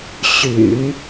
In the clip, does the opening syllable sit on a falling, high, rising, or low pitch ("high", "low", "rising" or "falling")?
low